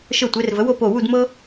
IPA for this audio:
ʃ ɤ˧˩ tʷ e˩˧ r v ə˩˧ w o˥˧ p o˧˩ w u˥˧ d m ɤ˥

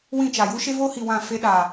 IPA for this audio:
w ĩ˦˨ t͡ʃ a˨ j u˦ ʃ e˦ v oː˦ h i˨ w ã˦˨ f e˦ ɗ a˨

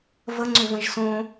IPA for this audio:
v ə ŋ͡ǀ ʏ v ə̃ ʒ s õ

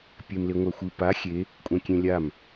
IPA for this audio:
pʲ e m l e ŋʷ a xʷ ɯ p a xʲ e | kʷʼ ɛ̃ kʲ ẽ lʲ a m

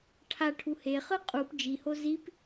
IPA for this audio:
ʈʰ a ʈʰ u h e χ ɯ qʼ u p d͡ʒ i h o z i p

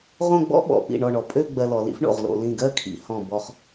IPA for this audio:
ʁ õ˥˧ ɡ͡b ɔ̰˥ ɓ ɔ̰˩˧ p ḭ˧˩ ɳ ɔ˧˩ ɳ ɔ˩˧ pʼ ø˥˧ ɡ͡b ɜ˧ l ɔ˩˧ l ḭ˥ f ɳ o̰˧˩ ʁ l o̰˩˧ l ĩ˧˩ ɡ ɜ˥˧ kʰ ḭ˩˧ h ɔ̃˧˩ b ɔ˧ χ

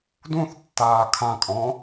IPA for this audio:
d ũ θ tː aː kʰ ã kʼ ɔ̃

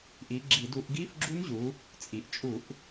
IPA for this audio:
ʔ i˩˧ ɡ͡ǁ i˧˩˧ d u˧˩˧ ʔ ɡ i˧˥˧ f ɡ͡ǁ u˧˥ n ʑ u˩˧ | t͡sʼ i˩ ʔ t͡ʃʼ u˧˩˧ ʔ

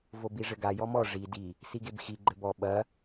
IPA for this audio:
v o b i ʐ ɘ ɡ a j ɔ m ɔ ʐ i d i | s i ɡ e b x i ɡ͡ǃ ɘ b ɔ ɓ ɐ

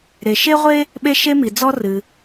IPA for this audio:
ɾ e˩ ʃ e˥ ʁʷ e˥ | ɓ e˥ ʃ e˥ m i˩ d͡z ɔ˥ r ɨ˩

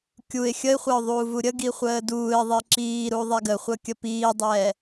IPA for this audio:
kʲ u ɪ̯ xʲ ə ɪ̯ χʷ æ ʊ̯ ðˤ uː v u ɾʲ ə ɡ i χʷ əː d uː ɪ̯ ðˤ i ǁ iː ɾ u ðˤ ɛ ɡ ə χʷ ə kʲ ə p iː dˤ ɛː

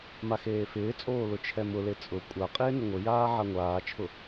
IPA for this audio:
m a x eː f ɪː t͡sʼ oː l ʊ t͡ʃʰ ɛ m ʊ l e t͡sʼ ʊ kʷʼ a qʼ ɪː n ɪ ŋʷ ɪ j aː ʕ a ŋʷ aː t͡ʃʰ ʊ

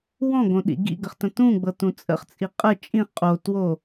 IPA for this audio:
w ɔ̃ ɡ õ ɗ ḭ ɡ ḭ ɡ ə χ t ə̃ t ũ ɡ͡b ɤ t ũ t͡sʼ ə̰ χ t͡sʼ i qʼ ə t͡ʃʼ ĩ χ qʼ o t w o

